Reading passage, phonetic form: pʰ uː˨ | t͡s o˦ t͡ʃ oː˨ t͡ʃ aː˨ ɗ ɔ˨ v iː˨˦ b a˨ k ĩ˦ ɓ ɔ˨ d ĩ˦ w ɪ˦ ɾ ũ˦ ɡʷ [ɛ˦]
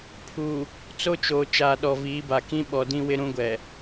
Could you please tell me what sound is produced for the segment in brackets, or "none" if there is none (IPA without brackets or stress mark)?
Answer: ɛ˨